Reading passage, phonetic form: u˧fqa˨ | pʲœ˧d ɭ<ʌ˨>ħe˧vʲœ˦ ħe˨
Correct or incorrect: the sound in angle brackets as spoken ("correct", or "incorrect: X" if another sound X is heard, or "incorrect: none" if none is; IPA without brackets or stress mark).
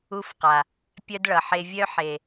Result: correct